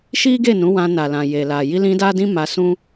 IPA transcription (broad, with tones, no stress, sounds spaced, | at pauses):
ʃ i˦ ɡ e˦˨ n ũ˨˦ w ã˧ n a˨ l ã˨ j e˨ l a˨ j i˧ l ĩ˧ d a˦ d ĩ˦ m a˧ s ũ˦